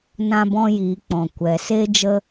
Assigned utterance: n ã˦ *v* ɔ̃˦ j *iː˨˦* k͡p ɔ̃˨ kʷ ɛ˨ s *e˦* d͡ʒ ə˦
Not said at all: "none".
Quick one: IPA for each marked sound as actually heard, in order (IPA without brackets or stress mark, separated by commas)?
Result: b, iː˨˦, e˦